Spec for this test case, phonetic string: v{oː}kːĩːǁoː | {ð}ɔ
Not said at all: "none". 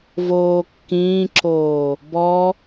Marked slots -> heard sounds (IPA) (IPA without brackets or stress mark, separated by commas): oː, b